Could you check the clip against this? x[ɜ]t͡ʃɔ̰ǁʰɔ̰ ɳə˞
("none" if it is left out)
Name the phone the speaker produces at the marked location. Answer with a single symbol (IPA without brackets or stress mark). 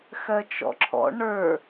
ɜ